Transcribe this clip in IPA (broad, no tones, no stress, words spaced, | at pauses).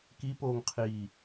kipoːŋqʰiː